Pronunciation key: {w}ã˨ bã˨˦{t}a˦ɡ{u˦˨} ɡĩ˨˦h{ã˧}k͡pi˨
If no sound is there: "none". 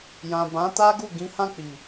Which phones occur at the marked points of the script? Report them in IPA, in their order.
j, t, u˦˨, ã˦˨

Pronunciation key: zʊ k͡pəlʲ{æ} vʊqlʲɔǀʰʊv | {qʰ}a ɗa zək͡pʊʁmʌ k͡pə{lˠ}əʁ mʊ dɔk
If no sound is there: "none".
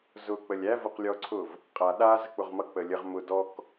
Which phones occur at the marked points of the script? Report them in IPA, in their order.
æ, qʼ, lʲ

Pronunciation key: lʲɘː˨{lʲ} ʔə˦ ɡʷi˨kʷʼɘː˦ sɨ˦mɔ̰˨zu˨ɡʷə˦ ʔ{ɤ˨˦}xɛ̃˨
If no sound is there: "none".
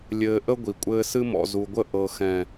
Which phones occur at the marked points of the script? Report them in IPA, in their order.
none, ɤ˨

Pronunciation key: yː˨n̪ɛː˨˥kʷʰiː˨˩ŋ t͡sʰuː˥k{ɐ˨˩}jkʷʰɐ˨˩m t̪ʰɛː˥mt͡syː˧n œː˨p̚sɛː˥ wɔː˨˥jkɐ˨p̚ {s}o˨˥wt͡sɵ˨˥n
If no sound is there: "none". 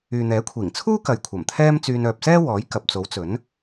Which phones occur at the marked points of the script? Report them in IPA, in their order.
ɐ˨, t͡s

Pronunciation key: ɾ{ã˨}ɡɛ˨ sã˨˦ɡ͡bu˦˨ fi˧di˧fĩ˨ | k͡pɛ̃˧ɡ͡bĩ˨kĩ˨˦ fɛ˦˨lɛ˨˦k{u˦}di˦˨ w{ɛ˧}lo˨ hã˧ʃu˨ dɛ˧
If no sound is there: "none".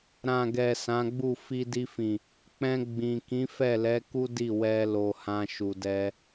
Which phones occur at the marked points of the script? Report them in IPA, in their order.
ã˨, u˦, ɛ˧

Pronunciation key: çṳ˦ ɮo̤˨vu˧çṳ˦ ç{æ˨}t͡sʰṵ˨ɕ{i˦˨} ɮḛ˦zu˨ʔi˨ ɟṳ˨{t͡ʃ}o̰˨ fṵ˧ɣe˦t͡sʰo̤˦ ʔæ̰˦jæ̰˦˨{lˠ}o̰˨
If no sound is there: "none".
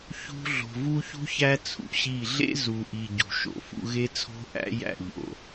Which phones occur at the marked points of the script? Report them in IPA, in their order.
æ˦, i˦˨, ʃ, ʎ

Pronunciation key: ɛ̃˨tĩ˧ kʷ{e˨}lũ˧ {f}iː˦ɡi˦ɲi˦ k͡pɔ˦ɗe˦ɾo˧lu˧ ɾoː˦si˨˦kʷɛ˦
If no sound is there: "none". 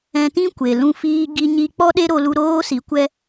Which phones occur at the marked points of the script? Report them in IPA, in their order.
e˨, f

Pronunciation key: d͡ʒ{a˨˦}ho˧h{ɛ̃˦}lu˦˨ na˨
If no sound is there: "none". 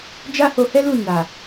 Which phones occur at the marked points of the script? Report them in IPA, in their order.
a˦, ɛ˦

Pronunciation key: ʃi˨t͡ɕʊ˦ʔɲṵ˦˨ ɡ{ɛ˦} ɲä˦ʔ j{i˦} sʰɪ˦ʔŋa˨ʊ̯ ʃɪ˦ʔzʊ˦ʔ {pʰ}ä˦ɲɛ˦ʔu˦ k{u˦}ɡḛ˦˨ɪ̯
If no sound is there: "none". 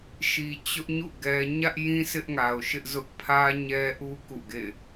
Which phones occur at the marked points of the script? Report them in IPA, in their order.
ɛ˦, ĩ˦, pʰ, ṵ˦˨

